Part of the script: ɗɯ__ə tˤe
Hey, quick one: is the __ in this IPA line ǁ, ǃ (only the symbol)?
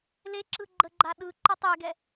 ǃ